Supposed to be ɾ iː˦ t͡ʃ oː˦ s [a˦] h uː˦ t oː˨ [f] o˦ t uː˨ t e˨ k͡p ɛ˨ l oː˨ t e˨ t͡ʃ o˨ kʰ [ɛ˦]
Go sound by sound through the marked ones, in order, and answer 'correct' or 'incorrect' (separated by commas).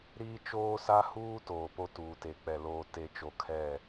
correct, incorrect, incorrect